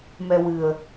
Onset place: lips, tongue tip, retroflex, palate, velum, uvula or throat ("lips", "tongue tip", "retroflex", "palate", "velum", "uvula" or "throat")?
lips